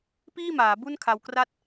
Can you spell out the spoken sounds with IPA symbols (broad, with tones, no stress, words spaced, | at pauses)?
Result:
piː˥˩maː˩˦ bu˥˩nkʰa˧w kra˥˩t̚